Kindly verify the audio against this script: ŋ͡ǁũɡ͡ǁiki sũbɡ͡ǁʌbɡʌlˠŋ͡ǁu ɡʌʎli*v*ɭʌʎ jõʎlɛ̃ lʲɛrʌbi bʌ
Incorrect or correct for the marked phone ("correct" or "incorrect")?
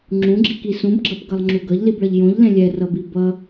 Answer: incorrect